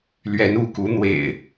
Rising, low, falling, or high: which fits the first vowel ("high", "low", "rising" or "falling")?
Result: rising